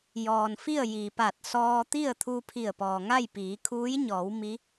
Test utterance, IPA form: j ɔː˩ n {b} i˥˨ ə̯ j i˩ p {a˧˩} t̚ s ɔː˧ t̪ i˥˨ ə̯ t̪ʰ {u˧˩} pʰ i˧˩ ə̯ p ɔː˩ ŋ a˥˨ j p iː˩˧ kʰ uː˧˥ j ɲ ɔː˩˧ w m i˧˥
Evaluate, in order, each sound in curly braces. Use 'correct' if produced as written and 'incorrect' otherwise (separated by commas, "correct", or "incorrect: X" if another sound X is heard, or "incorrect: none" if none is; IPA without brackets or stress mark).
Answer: incorrect: f, correct, incorrect: u˧